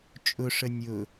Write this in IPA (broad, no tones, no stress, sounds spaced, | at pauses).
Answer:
t͡ʃʼ ʊ ʂ ə nʲ ʊ